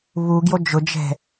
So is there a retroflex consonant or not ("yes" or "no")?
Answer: no